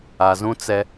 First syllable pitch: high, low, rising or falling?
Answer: low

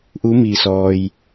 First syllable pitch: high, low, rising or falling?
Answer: rising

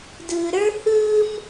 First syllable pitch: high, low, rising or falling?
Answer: low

